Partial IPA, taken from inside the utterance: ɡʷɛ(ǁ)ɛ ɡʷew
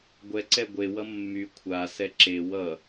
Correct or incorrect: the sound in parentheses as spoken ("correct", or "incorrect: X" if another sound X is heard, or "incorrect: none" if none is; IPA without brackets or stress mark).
incorrect: ǀ